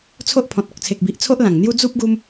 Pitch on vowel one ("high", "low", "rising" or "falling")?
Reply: high